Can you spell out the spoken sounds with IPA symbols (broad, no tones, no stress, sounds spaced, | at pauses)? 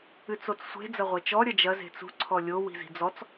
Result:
ɨ t͡s o t͡s sʷ e̤ d͡z ɐ ʁʷ ɛ t͡ʃ ɔ ɾʲ ɐ d͡ʒ ɐ z e̤ t͡s ṳ ǀʰ ɔ lʲ o w i̤ z i̤ d͡z ɔ t͡s